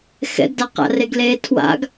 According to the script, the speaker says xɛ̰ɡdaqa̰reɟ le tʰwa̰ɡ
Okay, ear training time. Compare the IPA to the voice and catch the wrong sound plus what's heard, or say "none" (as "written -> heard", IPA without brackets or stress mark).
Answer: ɟ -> ɡ